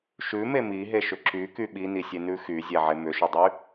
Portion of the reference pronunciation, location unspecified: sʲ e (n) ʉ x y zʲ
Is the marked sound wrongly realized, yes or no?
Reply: no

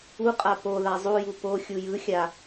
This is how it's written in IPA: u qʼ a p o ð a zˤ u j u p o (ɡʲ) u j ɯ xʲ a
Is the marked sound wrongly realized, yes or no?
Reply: yes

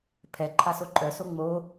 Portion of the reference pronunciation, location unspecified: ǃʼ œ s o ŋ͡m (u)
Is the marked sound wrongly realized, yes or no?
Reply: yes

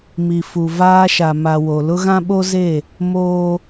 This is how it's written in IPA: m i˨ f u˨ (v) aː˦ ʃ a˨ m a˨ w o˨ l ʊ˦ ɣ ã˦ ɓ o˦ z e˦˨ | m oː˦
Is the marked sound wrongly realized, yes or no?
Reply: no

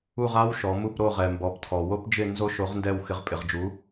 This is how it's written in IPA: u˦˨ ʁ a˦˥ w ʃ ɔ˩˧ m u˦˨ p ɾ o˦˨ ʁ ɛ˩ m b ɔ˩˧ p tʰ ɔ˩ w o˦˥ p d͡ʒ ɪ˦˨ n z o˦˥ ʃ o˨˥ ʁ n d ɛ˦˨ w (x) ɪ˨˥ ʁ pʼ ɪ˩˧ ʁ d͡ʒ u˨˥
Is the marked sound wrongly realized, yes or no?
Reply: no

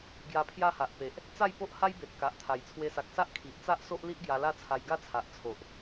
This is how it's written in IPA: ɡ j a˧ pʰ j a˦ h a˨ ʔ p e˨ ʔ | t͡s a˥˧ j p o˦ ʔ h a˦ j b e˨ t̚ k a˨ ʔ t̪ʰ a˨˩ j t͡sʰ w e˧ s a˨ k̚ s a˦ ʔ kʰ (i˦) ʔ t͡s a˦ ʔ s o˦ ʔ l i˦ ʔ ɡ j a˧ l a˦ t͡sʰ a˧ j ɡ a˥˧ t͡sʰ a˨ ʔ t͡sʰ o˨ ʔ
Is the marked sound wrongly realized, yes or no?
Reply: yes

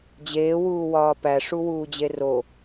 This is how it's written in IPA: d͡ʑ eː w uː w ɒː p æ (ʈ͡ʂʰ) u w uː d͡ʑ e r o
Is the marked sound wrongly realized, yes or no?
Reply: yes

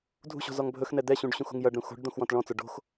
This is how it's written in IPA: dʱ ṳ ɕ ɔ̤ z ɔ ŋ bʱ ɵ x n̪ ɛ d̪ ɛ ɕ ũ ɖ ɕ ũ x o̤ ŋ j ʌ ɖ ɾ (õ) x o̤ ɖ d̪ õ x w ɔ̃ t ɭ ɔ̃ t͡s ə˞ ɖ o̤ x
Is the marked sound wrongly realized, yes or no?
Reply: yes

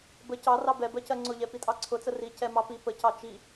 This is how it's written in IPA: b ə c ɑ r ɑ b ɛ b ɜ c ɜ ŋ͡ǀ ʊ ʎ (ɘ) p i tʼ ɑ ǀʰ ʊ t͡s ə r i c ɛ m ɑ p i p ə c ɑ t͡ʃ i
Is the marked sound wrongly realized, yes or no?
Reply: yes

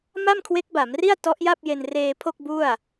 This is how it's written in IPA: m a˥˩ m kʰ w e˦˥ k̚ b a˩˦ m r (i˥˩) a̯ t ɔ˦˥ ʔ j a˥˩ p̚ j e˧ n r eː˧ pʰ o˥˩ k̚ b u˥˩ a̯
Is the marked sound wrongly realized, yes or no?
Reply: no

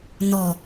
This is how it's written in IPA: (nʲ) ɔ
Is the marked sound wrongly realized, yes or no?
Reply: yes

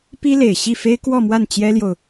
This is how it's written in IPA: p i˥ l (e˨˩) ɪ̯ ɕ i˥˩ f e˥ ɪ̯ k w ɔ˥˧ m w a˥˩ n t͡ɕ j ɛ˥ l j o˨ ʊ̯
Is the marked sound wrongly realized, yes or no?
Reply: no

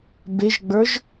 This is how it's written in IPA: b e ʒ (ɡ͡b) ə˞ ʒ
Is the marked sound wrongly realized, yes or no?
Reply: no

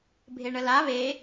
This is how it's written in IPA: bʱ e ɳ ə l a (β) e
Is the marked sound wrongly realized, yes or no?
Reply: no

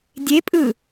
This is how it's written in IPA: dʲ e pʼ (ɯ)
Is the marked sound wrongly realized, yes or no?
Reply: no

